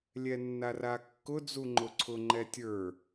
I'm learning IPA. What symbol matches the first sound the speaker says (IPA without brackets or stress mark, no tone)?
lʲ